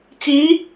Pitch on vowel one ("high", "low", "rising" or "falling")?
rising